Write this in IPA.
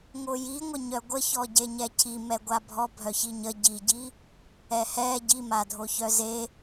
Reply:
ŋ o j i ŋʷ ə ɲ œ ɡʷ ə ç ɔ ɟ e ɲ ɛ cʰ i m ɛ ɡʷ a bʱ ɔ bʱ œ ç i ɲ ə ɟ i ɟ i | ɛ h ɛ ɟ i m a dʱ o ç œ z e

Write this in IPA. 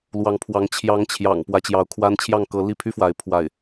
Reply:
l w ɑ˧˥ ŋ pʰ w ɑ˧˥ ŋ t͡ɕʰ j ɑ˧˥ ŋ t͡ɕʰ j ɑ̰˨˩ ŋ p w ä˧˥ t͡ɕ j ɑ˧˥ ʊ̯ kʰ w a˥ n t͡ɕʰ j ɑ˥˩ ŋ k ɤ˧˥ l i˥˩ pʰ y˥ f w a˧˥ ɪ̯ pʰ w a˥˩ ɪ̯

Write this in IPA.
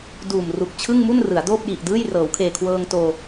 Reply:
d uː˨˩ m r u˨˩ k̚ t͡ɕʰ ɯ˥˩ ŋ m u˥˩ n r ɯ˩˦ a̯ d oː˥˩ p̚ j i˨˩ ʔ d ɯː˥˩ j r ɤː˩˦ w kʰ eː˨˩ kʰ w ɤː˧ ŋ t oː˧

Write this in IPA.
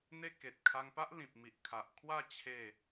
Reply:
n̪ e˥˧ k e˨ t̚ kʰ a˧ ŋ p a˦ ʔ l ĩ˨ p̚ m i˨ ʔ kʰ a˨ ʔ kʰ w a˥˧ t͡ɕʰ e˥˧

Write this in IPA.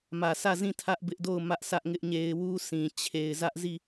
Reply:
m ä˨ sʰ ä˦˨ z ĩ˦˨ tʰ ä˦ ʔ b ɪ˦ ʔ d o˦˨ ʊ̯ m ä˦ ʔ s ä˦ ʔ ŋ ɪ˦ ʔ ɲ e˦ ɪ̯ w u˦ sʰ ĩ˨ t͡ɕʰ e˨ ɪ̯ z ä˦ ʔ z i˦˨

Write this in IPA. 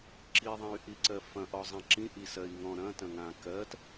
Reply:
ǁ i ðˤ ã y̯ ʔ i ǀ ɜ f ɐ̃ ʔ ɔ zˤ ã ǁ ĩ ʔ i s ɜ i̯ ŋ ɔ̃ ɾ ɐ̃ t ɐ̃ ŋ ã k ɜ t

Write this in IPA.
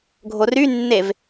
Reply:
ɡʱ o r y nː e v

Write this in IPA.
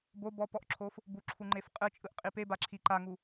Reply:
b o b ɔ p ɔ ʔ ǁʰ o f | b u ǁʰ u ŋ͡ǃ e f qʼ ɯ t͡ʃʼ ɯ ʔ qʼ i p e b a ǁʰ i ǃ a ŋ u

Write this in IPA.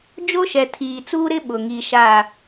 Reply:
d͡ʒ o˦ ʃ ɛ˨ tʰ iː˨ t͡s uː˦ ɾ ɪ˦ ɓ ʊ˨ ŋ i˨ ʃ a˦˨

